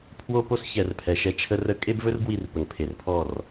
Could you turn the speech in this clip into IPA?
pʰwo˦po˦s çɛ˨rpʰɛ˨ʃɛ˦ t͡ʃʰə˦rə˦ kʼe˦bvɵ˦r ɡwi˦˨rpə˨ŋ pʰe˨rpʰɔ˦˨r

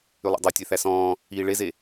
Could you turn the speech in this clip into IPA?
ylˠo̰dˤø tʲɛθæsɔ̃ː | iːɭeze

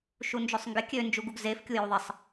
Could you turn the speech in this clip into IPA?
ʃund͡ʒøsˤŋɡɪ kʲø nd͡ʒuɡuɡzef kʲujuðˤɪsˤ

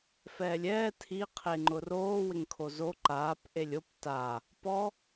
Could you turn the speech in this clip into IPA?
fɛːlʲɛː tʰiqʰeŋ͡ǃʊ roːwɪŋ kʰozo ǃaːp ʔelʲop ta | pɔ

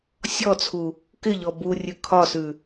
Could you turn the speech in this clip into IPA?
sʲɔt͡sʰu | kɪʎɔ burʲʉ kʰɒsʉ

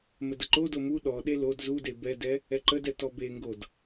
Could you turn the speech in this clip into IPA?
mədəǃodo mu ɗɔɗe lod zude bɛdɛ | ɛǃədɛ tɔbeŋɡod

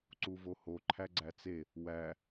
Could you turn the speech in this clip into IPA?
ǀuvoho ǃʰæɡ͡ǀæt͡se | wæ

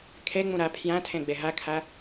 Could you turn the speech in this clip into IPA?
kʰeŋ͡mũ ɾæ pʰjæ̃tʰẽ ɡ͡beɦækʰæ

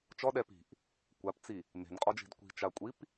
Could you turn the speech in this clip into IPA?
t͡ʃɔɗɛ pi̤ʔ | kʷapt͡si | me̤nqʼɔd͡ʒi̤d kʷi̤t͡ʃakʷʼip

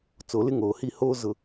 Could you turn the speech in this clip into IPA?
t͡so˨lɪ˦ŋoː˨hi˦ hoː˦ zʊ˦

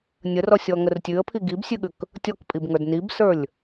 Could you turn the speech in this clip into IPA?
nʲərɔsʲɔŋər tʲʉə̯pʰi ɡibsʲʉɠʉk | tʲɔkpʼibŋə˞d nibsə˞lʲ

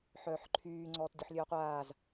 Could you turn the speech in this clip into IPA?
ħœːħǃʰyː ŋ͡ǀɔːtdʲoħlʲøɐ̯qʷaːz

